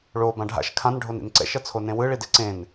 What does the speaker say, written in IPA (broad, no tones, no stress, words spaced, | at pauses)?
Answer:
ɭo bãɖʱa̰ʃ kʰãn ɖʱonḭnǀɛ̰ ʃʌt͡sʰonẽwɯ ɭideǀẽn